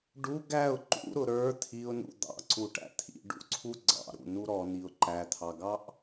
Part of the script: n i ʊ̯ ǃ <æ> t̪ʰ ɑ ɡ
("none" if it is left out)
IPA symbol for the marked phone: æ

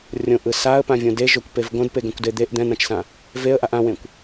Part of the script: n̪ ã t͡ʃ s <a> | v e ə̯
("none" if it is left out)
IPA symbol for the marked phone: ã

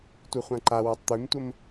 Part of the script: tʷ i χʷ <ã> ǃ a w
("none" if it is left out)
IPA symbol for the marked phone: ã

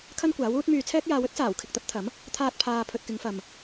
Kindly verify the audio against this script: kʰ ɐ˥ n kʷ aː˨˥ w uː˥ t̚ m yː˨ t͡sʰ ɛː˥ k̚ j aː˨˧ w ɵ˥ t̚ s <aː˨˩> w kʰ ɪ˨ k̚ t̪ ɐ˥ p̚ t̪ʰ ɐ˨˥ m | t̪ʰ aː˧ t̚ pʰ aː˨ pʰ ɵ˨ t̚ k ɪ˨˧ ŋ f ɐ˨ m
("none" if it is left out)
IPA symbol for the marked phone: aː˨˩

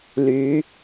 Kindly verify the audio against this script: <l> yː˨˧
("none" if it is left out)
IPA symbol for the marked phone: l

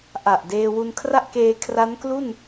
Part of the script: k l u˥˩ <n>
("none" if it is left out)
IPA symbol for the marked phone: n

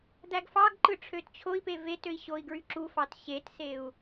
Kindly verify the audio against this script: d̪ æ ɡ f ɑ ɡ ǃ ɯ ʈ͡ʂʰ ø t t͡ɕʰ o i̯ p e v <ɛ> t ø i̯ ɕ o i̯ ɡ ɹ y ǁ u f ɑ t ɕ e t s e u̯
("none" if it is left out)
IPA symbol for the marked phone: e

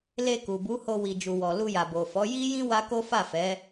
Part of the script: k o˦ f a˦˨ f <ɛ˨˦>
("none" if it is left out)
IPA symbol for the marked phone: ɛ˨˦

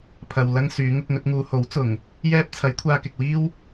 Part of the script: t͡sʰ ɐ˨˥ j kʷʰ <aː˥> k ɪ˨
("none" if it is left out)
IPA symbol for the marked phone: aː˧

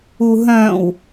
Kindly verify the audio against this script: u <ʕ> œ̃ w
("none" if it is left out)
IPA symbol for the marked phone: ɦ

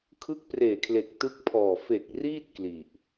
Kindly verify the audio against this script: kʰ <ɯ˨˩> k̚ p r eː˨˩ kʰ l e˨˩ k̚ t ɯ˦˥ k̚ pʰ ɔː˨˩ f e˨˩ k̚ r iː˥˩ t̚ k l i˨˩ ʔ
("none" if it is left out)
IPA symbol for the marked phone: ɯ˦˥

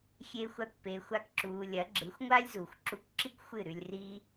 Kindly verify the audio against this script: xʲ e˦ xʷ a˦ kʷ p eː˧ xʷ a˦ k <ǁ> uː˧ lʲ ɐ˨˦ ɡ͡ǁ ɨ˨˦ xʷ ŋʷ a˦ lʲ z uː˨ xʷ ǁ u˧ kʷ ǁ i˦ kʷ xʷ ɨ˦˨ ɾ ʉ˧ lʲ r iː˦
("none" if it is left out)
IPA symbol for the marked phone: ǁ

